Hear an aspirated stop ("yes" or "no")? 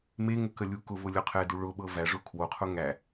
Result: yes